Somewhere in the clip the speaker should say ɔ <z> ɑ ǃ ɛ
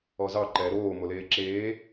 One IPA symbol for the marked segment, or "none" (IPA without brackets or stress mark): z